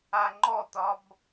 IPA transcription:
a ŋ͡ǃ ɔ t̪ ɒ b

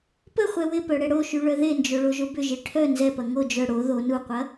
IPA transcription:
p ə χʷ ɛ w ɪ p œ ɽ ɛ ɽ o ʃ y ɭ œ ð e n d͡ʒ o ɭ o ʒ o b ʏ ʒ e ʈʰ œ n z ɛ p ɐ ŋ o d͡ʒ œ ɽ o ð o n u qʷ ɐ

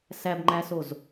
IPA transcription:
s æ b ŋ͡ǃ æ s o z

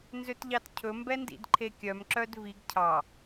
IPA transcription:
n z ø t ʎ ɑ t cʰ ɵ m b ɛ n d ḭ d ǃʰ e kʲ œ m ǁ œ d v i ɡ cʰ ɑ

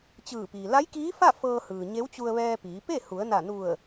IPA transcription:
t͡ɕ ɯː˧˩ p iː˩ l a˧˥ j k iː˧˥ f a˥˨ f ɤː˧ h ɯː˩ ɲ e˧˥ w t͡ɕ u˧ ə̯ ʋ ɛː˧ p iː˩˧ p e˥˨ h u˩˧ ə̯ n a˧˩ n u˧˩ ə̯

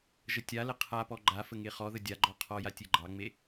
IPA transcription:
ʒ ə tʲ a l ə qʰ a p ɔ ɡ͡ǃ a f ə ŋ e χ ɔ ð ə dʲ a ɡ͡ǃ ɔ qʰ ɔ j a tʲ e ɡ͡ǃ ɑ ŋ͡m e

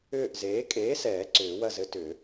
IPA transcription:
ʏː˦˨ ʔ z eː˨˥ kʼ eː˨˥ s ɛː˨˩˦ ǀ ʏː˨˩˦ w ɐ˦˨ z ɘ˨˥ t ʏ˨˩˦

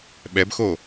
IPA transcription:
ɓ ɛ b x o

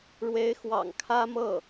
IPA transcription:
ɻ w e˧˥ ɪ̯ x w ɑ̰˨˩ ŋ kʰ ä˥ m ɤ˥˩

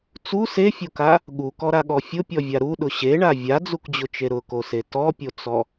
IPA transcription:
t͡s u s e fʲ o k a | ɠ u k ɔ ɾ a ɠ ɔ fʲ ʊ pʲ ɔ vʲ a ɾ u ɗ ʊ ɕ e ɳ a vʲ a d͡z u k d͡ʑ ʊ t͡ʃ e ɾ ʊ k o s e t ɔ pʲ o t͡s ɔ

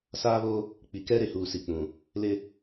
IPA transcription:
s aː˦ β o˦ | k͡p i˨ k ɛ˦ ɾ e˨ h uː˨ s i˨ k͡p ũ˨ | l ɪ˦

